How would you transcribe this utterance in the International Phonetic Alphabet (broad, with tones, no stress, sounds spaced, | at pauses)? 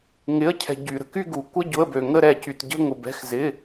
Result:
ŋ ɪ˩˧˩ ə̯ cʰ ɛ̤˩ ɟ y˩ ɾ ə̤˩ k y˦˨ ɡ u˩ kʷ ə˦˨ ɟ ʊ˩˧˩ ə̯ b ø˩ ŋ ə˦˨ ɾ ɛ˧˩˧ c y˩ t ɟ ə̤˦˨ ŋ ʊ˩ b ɛ̤˩˧˩ x z ɪ˩˧˩